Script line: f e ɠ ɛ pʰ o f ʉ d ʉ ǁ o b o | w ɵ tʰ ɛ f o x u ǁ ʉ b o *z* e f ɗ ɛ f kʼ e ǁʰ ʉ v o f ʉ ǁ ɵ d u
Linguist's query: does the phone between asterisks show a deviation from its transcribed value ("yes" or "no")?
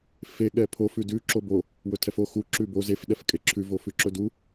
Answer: no